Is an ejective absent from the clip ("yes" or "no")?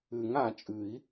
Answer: no